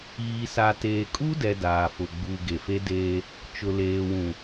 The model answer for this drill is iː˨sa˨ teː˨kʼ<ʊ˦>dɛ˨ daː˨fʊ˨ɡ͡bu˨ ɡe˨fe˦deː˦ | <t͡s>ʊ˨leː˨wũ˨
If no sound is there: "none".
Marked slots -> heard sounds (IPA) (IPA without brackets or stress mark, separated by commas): u˦, t͡ʃ